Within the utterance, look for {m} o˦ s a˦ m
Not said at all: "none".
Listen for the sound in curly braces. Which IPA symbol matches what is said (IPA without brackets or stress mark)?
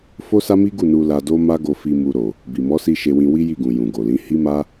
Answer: f